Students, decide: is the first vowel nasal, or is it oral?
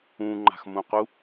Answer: nasal